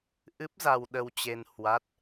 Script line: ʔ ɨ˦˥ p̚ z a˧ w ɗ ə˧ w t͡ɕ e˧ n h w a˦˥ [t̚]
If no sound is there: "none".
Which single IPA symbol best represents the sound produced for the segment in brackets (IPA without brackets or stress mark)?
t̚